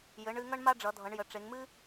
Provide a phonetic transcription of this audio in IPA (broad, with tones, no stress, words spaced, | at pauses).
jɘ˩˧ɳɨ˩˧ ŋʌ˥ɳma˥ɖ͡ʐʌ˩˧dʱʌ˩˧ɳ jə˩˧ʈ͡ʂe˩˧ŋ mɨ˥